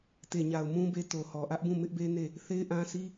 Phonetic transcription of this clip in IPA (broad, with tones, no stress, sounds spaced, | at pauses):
t e˨ ɲ a˨ ʊ̯ m ũ˦ b e˦ t o˨ h ɔ˨ ʔ ä˦ ʔ b ũ˦˨ m ɪ˦ ʔ b e˦ n e˦˨ | θ e˦ ɪ̯ ʔ ã˦ s i˦